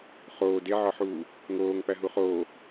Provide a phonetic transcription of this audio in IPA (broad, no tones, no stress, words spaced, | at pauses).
χoː deʕɒħuː | ŋoːŋpæ ɦuχoː